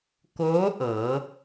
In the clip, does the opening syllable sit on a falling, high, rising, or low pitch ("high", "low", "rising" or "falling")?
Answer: rising